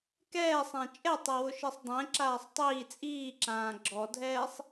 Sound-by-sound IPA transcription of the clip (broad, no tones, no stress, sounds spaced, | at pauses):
k ɛː sˤ ã t͡ʃʼ ɛ tˤ ɛ w ʊ ʃ i sˤ dˤ ɛ̃ ǁ aː sˤ tˤ iː t͡sʼ iː ǁ ãː ɡ͡ǁ ɔ dʱ ɛː sˤ